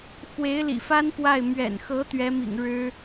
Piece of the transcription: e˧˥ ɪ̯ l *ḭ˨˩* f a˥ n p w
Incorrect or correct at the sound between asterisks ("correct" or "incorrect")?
correct